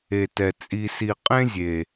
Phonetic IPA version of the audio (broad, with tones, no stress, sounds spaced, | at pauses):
e˨˩ t ɛ˨˩ t͡sʼ i˨˩ s i˨˩ qʼ ẽ˦ zʲ e˨˩